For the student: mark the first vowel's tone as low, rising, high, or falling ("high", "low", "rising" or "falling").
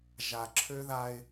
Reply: low